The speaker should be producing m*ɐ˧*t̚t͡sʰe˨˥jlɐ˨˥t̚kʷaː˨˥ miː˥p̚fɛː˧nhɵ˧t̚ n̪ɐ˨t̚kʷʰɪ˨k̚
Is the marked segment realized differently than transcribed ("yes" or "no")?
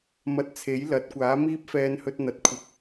no